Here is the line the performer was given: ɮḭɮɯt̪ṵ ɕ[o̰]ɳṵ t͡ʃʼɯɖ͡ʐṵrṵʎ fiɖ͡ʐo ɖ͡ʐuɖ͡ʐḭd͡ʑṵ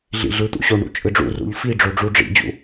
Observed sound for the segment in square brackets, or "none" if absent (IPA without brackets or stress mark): o